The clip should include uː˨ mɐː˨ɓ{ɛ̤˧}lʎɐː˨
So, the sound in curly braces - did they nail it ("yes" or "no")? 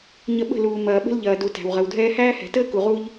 no